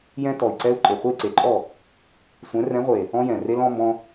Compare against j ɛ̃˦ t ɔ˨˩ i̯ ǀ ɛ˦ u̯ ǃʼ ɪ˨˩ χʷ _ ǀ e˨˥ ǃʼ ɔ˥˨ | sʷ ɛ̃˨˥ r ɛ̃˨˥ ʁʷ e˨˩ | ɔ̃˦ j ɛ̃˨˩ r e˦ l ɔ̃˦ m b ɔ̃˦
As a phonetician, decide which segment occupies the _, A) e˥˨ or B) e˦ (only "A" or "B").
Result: A